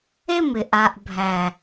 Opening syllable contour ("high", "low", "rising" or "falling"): falling